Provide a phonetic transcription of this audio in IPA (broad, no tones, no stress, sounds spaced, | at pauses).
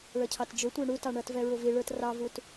ɭ ʌ cʰ ɑ t d͡ʒ ʊ tʷ ə˞ ɳ u t ɑ ɳ ʌ t v ɛ ɹ ʊ v i ɭ ə˞ t r ɑ v u t